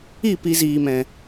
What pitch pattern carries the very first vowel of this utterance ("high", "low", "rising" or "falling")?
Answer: falling